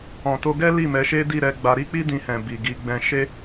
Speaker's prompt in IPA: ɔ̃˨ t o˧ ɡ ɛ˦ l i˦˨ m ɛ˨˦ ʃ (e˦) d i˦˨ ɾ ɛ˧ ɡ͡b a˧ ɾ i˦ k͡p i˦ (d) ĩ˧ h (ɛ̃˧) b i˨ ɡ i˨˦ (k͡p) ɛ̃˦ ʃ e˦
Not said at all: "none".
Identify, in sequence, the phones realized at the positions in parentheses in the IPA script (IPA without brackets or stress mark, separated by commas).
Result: e˦, d, ɛ̃˨, ɡ͡b